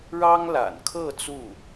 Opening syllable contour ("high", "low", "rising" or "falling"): high